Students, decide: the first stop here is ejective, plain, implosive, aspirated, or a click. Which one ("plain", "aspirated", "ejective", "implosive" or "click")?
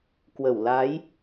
plain